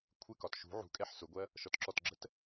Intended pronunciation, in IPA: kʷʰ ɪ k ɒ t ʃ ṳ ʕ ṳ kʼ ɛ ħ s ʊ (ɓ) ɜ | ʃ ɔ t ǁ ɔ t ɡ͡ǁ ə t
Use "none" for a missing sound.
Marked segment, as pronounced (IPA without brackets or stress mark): ɡʷ